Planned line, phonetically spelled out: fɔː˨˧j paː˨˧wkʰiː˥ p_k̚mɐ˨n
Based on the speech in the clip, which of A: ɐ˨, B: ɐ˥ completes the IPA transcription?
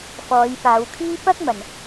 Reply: B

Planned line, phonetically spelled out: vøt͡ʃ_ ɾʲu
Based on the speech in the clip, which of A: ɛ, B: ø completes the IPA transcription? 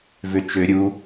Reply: B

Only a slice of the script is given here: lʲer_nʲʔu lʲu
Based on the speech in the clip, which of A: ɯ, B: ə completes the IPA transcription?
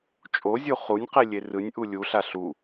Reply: A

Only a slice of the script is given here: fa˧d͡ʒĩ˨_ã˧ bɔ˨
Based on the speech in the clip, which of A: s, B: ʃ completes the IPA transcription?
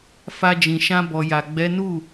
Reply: B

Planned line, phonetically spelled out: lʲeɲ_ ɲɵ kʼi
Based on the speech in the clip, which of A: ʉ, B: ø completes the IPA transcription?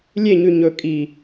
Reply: A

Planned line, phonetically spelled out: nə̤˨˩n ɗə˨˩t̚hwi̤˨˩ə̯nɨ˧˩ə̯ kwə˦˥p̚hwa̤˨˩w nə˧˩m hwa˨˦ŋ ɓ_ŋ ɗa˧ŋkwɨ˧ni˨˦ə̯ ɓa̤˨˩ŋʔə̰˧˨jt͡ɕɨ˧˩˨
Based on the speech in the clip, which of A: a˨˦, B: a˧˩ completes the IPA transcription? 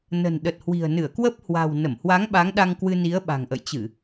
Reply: A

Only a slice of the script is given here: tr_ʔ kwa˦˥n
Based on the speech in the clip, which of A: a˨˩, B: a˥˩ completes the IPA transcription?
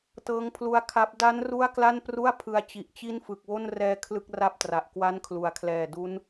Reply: A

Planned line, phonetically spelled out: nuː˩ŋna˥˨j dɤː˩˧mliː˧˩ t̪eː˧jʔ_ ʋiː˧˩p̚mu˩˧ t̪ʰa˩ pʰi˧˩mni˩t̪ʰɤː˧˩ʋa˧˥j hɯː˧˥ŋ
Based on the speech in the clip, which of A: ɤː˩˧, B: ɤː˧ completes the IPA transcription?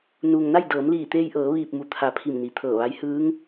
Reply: A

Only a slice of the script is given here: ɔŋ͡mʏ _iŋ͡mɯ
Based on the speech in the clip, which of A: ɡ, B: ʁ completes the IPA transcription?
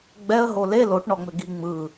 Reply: A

